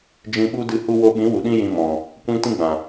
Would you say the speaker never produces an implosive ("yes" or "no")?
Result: no